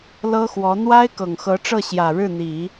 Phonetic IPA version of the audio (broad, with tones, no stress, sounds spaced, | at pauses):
l ɤ˥ x w ɔ˧˥ n̪ w a˥ ɪ̯ k ɤ˨˩ ŋ x ɤ˧˥ ʈ͡ʂ ɤ˥˩ ɕ j ä˨˩ ɻ ɻ̩˥˩ n̪ i˨˩˦